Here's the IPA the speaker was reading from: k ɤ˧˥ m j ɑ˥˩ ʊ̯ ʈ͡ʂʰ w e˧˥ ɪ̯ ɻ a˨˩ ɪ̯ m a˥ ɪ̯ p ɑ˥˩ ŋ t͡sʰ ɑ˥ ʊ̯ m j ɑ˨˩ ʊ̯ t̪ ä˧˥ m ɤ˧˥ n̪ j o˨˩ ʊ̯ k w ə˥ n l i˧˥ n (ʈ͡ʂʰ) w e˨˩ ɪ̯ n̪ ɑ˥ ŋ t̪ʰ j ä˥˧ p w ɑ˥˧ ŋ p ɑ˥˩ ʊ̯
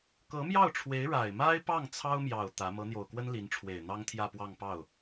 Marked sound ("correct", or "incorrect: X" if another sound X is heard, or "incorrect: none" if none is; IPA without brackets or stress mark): correct